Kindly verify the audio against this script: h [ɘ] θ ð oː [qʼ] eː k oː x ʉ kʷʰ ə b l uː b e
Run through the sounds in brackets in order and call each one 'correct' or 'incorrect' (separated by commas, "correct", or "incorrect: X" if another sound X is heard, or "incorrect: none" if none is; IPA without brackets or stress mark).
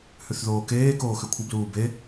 incorrect: ʉ, incorrect: k